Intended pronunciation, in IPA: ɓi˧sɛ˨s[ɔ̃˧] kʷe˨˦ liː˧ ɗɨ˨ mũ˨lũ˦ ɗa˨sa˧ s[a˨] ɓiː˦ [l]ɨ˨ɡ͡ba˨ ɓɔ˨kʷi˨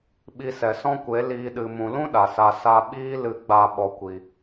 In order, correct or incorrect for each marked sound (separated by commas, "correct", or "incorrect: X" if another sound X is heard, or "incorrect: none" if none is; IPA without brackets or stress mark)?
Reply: incorrect: ɔ̃˦, incorrect: a˧, correct